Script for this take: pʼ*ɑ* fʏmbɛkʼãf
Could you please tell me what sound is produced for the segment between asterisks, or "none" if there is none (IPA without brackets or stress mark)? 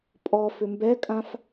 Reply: ɔ